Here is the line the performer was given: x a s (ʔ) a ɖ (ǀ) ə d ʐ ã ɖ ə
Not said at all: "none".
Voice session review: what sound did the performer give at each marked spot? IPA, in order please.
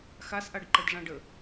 ʔ, ǃ

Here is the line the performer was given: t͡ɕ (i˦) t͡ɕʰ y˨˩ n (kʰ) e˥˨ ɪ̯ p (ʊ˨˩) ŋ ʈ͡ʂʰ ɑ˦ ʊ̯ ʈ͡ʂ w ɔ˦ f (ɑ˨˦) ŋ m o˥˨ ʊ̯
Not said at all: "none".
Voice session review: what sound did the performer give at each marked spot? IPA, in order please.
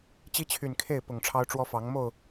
i˦, kʰ, ʊ˨˩, ɑ˨˦

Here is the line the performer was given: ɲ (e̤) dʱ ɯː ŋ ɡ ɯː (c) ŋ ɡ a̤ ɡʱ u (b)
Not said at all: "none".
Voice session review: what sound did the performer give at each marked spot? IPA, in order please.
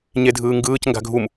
e, c, m

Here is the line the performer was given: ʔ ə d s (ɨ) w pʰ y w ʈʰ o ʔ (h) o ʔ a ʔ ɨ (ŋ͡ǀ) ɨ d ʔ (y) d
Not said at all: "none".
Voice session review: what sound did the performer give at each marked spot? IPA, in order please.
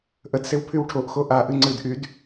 e, x, ŋ͡ǀ, y

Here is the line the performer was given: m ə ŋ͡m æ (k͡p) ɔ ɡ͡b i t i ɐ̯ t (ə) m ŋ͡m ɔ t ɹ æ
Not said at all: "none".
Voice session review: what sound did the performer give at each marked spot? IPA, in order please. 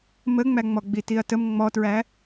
ŋ͡m, ə

